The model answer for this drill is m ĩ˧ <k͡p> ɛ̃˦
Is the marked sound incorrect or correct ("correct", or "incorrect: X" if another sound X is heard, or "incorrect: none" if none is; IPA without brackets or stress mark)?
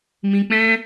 correct